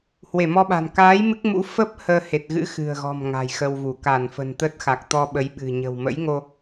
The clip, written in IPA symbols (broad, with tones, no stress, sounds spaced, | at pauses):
h w e˧˩ m ɔ˧ ɓ a̤˨˩ n k aː˨˦ j m ɨ˦˥ k̚ m ṵ˧˥ f ə˦˥ p̚ h əː˧ h e˨˩ t̚ ɣ ɨ̰˧˥ x ɨ̤˨˩ ə̯ ɣ ɔ̤˨˩ m ŋ a̤˨˩ j x ə˧ w v u˧˩ k a˧˩ n f ə̤˨˩ n t̪ ə˦˥ t̚ x a˨˩ k̚ t̪ ɔ˧ ɓ ə˨˦ j ɓ ɨ̤˨˩ ɲ ə̤˨˩ w m ə̰˧˥ j ŋ o˧